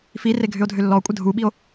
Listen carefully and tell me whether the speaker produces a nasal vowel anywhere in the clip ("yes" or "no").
no